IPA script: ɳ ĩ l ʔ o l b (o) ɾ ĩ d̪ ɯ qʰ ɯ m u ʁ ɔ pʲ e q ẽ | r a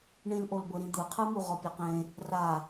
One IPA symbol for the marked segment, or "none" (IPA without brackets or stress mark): ɤ